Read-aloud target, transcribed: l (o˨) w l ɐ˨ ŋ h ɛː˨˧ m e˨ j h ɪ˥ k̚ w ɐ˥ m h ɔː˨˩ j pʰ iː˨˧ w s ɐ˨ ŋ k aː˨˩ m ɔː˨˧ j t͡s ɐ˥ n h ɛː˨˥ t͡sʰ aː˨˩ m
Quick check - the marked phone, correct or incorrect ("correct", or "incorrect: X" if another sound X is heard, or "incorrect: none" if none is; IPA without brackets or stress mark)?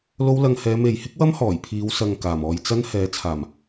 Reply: incorrect: o˧